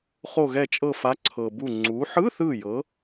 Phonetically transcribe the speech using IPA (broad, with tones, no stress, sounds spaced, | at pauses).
χ o˧˩ ɣ ɛ˧˩ t͡ʃʼ ɤ˧˩ f a˨˥ ǀʰ ɤ˩ b u˧˩ ŋ͡ǀ u˩˧ ħ ɯ˧˥˧ θ ɯ˧˩ j ɤ˩˧